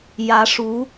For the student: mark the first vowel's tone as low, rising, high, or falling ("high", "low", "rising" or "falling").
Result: rising